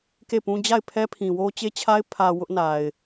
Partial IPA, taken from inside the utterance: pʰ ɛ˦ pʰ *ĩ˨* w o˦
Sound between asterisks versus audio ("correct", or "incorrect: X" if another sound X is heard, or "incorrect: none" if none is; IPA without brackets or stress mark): correct